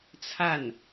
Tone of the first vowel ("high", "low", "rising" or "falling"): falling